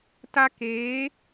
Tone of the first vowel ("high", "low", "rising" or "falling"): high